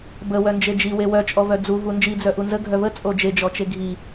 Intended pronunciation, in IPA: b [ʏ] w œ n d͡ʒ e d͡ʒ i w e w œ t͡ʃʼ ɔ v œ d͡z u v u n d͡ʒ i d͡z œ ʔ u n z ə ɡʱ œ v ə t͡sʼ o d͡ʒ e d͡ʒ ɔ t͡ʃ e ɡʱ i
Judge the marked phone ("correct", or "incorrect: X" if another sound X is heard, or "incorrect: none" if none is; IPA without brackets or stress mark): incorrect: ə